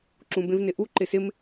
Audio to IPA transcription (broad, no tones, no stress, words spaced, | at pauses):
ǁũbẽvnɪʔu ǃɪsɪm